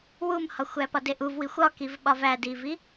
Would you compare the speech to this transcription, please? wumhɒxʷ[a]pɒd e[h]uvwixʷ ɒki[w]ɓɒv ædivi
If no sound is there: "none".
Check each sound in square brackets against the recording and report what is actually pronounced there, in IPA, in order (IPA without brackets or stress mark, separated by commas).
æ, ʔ, v